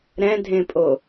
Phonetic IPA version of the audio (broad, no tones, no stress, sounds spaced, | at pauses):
ɾ ɛ̃ dʱ ẽ pʼ o